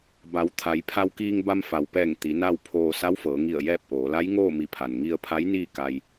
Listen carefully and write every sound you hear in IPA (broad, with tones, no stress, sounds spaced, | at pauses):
b a˩˧ w t̪ʰ a˩˧ j pʰ a˧ w k iː˧ ŋ b a˧ m f a˩ w p ɛː˧˩ ŋ t̪ i˩˧ n a˥˨ w pʰ oː˧ s a˧˥ w f ɤː˩˧ ŋ i˧˩ ə̯ j ɛː˥˨ p̚ ʔ oː˩˧ l a˧˥ j ŋ oː˥˨ m i˧˩ pʰ a˩ n ŋ i˧ ə̯ pʰ a˧˥ j n iː˥˨ k a˧ j